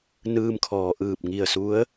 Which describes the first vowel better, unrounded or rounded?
unrounded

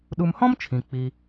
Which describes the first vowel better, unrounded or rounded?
rounded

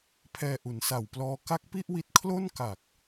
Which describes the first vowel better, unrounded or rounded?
unrounded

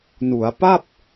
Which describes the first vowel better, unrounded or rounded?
rounded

